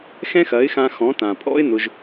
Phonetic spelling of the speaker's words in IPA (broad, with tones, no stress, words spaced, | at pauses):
xɛ̃˦xɐ˨˦ɪ̯xã˧ xɔ̃˨˦tã˨pʼɔ̰˦ɪ̯ nʊ˧ʒ